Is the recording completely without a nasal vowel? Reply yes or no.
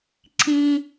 no